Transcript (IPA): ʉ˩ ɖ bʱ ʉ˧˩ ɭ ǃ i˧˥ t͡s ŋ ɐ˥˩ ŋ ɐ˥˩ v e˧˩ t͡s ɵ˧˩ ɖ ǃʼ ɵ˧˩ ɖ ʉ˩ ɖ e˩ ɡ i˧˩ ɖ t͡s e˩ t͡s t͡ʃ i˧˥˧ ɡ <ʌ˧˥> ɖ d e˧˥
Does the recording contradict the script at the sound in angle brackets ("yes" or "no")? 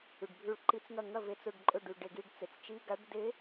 yes